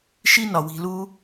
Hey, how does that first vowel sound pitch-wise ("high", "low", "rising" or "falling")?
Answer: high